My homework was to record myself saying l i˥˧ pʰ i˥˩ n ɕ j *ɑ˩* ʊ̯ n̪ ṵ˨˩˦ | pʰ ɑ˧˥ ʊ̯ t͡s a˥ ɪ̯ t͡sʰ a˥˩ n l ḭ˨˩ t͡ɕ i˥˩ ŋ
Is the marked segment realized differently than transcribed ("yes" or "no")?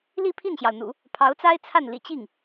no